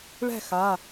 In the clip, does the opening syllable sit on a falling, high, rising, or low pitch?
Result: falling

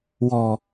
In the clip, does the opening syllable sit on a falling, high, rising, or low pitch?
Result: low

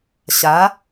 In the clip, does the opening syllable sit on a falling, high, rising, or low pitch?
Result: rising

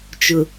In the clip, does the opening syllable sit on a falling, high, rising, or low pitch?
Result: low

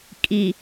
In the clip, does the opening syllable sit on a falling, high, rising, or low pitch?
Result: low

